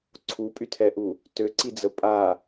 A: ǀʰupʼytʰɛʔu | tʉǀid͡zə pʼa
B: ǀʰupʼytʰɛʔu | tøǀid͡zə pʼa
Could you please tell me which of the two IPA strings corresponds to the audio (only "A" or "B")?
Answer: B